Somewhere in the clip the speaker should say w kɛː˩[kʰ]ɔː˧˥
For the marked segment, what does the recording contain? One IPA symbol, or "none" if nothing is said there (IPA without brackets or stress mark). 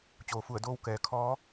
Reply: kʰ